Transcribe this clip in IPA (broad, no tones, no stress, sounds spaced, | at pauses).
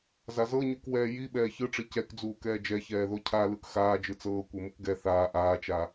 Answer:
z a z ɤ ɲ u k w ɛː j i ɓ ɛː ç ɯ ʈ͡ʂ i c ɛ k d͡z uː k ɛː d͡ʒ ɛ ç ɛː ð o cʰ a l ɯ k x aː d͡ʒ ɯ t͡s ɤː kʷ e m u k ɡ ɛ θ aː ʔ aː t͡ʃ a